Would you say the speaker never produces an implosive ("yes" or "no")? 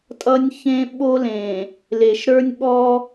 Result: no